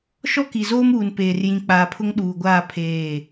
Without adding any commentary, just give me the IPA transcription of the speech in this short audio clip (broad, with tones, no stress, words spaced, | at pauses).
ʃɔ˦ki˨zoː˦muː˨n peː˨rjĩ˨k͡paː˨pʰʊ˦ŋ ɗuː˨ɡʷaː˦˨ pʰeː˦˨